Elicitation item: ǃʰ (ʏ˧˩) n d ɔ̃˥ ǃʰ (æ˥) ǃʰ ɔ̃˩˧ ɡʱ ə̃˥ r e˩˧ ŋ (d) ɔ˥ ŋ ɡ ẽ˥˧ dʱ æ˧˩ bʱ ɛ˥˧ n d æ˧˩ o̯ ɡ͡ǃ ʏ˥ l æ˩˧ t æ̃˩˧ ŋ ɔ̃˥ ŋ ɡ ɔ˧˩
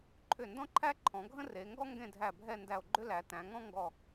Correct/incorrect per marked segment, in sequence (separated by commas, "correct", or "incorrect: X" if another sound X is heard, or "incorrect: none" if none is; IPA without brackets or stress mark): correct, correct, incorrect: ɡ